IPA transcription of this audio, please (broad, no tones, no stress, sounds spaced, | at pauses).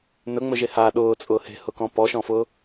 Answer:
n ɵ ŋ͡m ɵ ʒ e h a ɗ ʊː t͡sʼ ʊː h e̤ h ʊ k ɔ̃ p ɔ ʃ ɔ̃ f ʊ